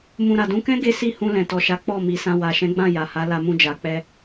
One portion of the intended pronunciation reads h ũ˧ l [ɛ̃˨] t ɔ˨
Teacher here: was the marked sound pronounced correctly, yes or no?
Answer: yes